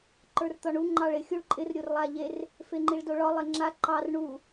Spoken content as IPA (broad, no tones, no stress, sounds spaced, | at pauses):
ǃ ə˞ r t̪ ɒ ɳ u ŋ͡ǃ ɑ ɭ ɪ xʲ u ɭ ǃʼ ɪ r ɾʲ o r lˠ a ʎ e r | f e ŋ͡ǃ i ɭ d o ɭ ɒ lˠ e ŋ͡ǁ a ǃ ɑ r ɳ u